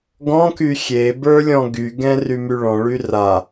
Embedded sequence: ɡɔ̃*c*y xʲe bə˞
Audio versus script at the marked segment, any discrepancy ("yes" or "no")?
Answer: yes